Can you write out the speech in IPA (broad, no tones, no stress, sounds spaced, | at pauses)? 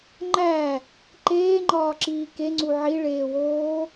ŋ͡ǃ æ | ǃ eː ŋ͡ǃ ɒː ǁ iː k e ŋ͡ǀ u ʕ i ɭ eː w oː